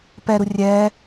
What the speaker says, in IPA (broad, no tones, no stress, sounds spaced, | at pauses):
p ɛ ɾ u rʲ ɛː